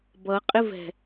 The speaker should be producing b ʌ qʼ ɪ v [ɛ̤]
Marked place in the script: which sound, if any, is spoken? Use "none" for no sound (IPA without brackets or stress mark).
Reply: ɛ̤